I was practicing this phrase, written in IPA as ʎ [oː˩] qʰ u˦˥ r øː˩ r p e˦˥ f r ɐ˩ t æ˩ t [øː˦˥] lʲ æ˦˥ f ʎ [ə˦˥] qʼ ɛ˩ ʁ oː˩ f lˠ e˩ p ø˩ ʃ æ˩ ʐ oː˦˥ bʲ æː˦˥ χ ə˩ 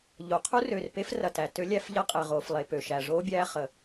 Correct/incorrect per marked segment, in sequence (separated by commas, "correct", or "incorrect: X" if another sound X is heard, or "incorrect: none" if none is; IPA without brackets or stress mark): incorrect: o˩, incorrect: ø˦˥, incorrect: ɐ˦˥